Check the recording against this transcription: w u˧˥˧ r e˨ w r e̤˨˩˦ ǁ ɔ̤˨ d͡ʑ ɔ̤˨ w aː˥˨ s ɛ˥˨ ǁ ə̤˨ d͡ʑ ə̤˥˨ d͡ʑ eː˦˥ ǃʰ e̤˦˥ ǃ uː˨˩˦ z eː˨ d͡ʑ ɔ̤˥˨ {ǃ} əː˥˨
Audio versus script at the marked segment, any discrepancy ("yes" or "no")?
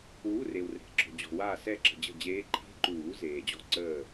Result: yes